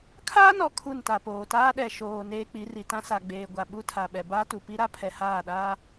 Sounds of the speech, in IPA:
kʰ aː˦ n ɔ˨ kʰ u˦˨ n t a˨ p oː˨ t aː˦ ɗ ɛ˨ ʃ oː˨ n eː˦ k͡p i˨˦ r i˨ t ã˦ s a˨ ɡ͡b eː˨ ɡʷ a˨ ɓ u˦ tʰ a˨ ɓ ɛ˨ b aː˦ t u˨ p i˦ ɾ a˦ pʰ ɛ˨ h aː˦˨ ɗ aː˦

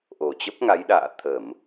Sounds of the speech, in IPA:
ʔ o˨˩ t͡ɕ ə˦˥ p̚ ŋ a˨˦ j ɗ a̰ː˧˨ t̪ʰ ə˧˩˨ m

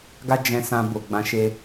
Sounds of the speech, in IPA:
ɡ a˦ d͡ʒ ɛ̃˧ s ã˧ b o˨ ɡ͡b ã˧ ʃ e˧

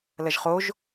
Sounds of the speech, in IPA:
l ɐ ʒ χ o ʒ

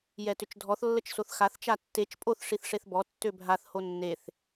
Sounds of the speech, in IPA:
j ɛ t ʏ t͡ʃ dʱ ɔ θ lː ə t͡ʃ s o θ x a θ t͡ʃ a tː e t͡ʃ pʼ o θ ʂ i θ ʂ e θ b ɔ tː ø bʱ a θ h o nː e θ

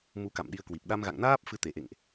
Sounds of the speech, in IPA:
m u˨˦ k a̰˧˨ m ɗ i˨˦ ə̯ k w i˨˩ p̚ ɗ a˧ m ɣ a̰˧˨ ŋ n aː˦˥ p̚ f ɨ˨˦ t̪ e˧˩ ʔ ḛ˧˨ ŋ ʔ

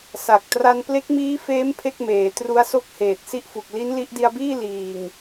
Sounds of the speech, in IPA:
s a˨˩ k̚ t r a˧ n p l e˦˥ k̚ m iː˦˥ f eː˦˥ m pʰ e˥˩ k̚ m eː˩˦ t r u˦˥ a̯ s o˥˩ k̚ h eː˨˩ t̚ s i˥˩ ʔ f u˨˩ k̚ l i˦˥ n l i˦˥ ʔ d i˧ a̯ b iː˥˩ l iː˨˩ ŋ

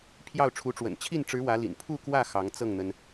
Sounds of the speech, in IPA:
pʰ j ɑ˥˩ ʊ̯ ʈ͡ʂʰ u˧˥ ʈ͡ʂ w ə̰˨˩ n t͡ɕʰ i˥˩ n ʈ͡ʂ ɻ̩˧˥ w ä˧˥ l ḭ˨˩ n pʰ u˥˧ k w ä˥˩ x ɑ˧˥ ŋ t͡s ɤ˥˩ ŋ n̪ ə˩ n

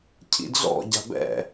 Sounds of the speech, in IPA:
cʰ ḭ d͡z ɔ̰ ɟ a̤ b ɛ̰

